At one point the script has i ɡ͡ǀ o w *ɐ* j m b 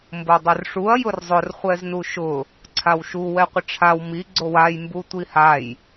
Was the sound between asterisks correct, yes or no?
no